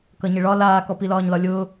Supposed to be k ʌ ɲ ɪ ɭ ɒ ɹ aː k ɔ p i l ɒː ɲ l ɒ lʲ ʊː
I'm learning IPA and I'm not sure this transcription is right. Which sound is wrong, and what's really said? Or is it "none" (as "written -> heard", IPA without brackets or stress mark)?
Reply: ɹ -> l